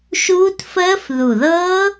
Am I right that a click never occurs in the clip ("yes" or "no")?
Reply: yes